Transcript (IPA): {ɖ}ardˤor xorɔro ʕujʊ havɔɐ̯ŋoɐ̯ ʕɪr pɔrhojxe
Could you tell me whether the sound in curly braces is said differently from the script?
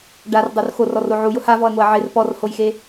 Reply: no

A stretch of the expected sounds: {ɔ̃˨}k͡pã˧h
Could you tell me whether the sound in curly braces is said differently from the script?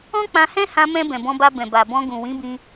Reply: yes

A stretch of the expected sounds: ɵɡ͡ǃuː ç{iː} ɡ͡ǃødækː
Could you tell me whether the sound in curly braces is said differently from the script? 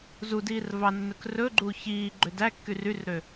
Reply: no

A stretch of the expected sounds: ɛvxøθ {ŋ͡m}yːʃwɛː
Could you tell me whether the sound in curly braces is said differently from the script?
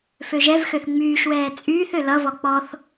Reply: no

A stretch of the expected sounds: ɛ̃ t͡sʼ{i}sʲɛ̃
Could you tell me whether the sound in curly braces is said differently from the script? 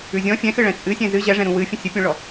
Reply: yes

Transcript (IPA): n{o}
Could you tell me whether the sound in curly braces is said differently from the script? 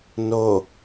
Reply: no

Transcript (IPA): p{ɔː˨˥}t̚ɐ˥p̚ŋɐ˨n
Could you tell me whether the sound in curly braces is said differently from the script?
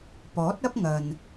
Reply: no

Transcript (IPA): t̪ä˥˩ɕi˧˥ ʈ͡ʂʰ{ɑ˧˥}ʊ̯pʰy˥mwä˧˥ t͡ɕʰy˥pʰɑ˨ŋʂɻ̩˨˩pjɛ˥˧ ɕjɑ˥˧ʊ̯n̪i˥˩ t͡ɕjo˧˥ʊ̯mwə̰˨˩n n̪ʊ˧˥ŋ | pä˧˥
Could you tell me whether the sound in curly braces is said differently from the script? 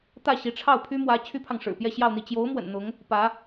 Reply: yes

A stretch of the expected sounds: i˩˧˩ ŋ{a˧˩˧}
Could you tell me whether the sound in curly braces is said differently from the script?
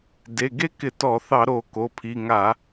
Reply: no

